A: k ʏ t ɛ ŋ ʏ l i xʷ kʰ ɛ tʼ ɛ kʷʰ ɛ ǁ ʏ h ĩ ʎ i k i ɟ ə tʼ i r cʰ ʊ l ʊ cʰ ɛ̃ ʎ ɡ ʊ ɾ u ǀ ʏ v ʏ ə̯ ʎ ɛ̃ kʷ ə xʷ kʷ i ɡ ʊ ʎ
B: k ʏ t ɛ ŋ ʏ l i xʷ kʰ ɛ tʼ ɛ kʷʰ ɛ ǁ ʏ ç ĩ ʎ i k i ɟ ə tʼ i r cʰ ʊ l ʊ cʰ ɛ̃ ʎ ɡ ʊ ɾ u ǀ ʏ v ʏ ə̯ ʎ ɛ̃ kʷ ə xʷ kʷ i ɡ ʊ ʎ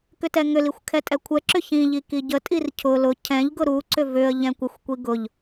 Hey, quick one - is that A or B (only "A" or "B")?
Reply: B